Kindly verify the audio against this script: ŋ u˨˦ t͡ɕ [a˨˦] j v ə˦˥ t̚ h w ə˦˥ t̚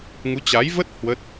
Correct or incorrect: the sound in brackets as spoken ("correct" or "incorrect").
correct